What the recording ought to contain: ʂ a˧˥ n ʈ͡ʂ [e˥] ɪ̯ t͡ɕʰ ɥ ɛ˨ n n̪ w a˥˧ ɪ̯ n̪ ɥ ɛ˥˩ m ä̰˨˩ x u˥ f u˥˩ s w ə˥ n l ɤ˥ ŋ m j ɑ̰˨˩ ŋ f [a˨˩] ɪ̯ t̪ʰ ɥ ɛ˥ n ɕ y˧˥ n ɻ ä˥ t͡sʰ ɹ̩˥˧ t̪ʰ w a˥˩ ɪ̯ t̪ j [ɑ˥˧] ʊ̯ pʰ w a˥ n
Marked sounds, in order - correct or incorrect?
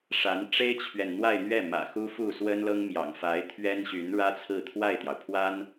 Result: correct, incorrect: a˧˥, incorrect: ɑ˩

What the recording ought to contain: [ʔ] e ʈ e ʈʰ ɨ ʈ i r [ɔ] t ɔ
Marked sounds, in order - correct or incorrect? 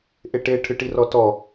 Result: correct, correct

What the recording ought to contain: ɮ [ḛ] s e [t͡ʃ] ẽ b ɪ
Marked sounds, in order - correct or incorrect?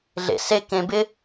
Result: correct, incorrect: k

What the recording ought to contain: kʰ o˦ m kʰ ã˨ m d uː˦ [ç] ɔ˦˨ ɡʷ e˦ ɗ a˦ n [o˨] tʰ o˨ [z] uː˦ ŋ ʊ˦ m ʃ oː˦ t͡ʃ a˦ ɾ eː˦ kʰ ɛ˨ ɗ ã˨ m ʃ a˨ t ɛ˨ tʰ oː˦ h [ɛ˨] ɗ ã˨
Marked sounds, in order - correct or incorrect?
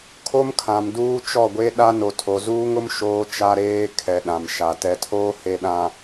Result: incorrect: t͡ʃ, correct, correct, incorrect: e˨

